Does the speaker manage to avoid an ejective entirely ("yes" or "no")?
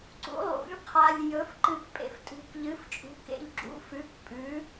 no